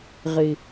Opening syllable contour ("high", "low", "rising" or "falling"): low